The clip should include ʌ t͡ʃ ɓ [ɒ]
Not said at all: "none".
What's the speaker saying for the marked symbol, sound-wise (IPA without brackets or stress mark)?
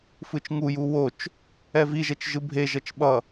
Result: ʌ